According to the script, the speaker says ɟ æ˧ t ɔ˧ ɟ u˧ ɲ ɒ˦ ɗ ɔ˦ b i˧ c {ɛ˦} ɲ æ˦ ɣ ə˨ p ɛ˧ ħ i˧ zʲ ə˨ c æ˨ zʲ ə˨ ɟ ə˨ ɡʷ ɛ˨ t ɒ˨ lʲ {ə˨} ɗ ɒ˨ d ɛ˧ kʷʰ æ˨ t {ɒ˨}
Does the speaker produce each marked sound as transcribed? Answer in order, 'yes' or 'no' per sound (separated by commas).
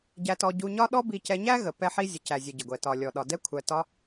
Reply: no, no, no